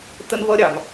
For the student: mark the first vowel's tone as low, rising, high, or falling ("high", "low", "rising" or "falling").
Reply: high